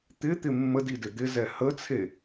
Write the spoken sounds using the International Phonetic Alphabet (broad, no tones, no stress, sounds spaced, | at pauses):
t̪ ɪ t̪ ɪ mː ə d i d ɪ d̪ ɪ z ɛ h ə t͡sʰ e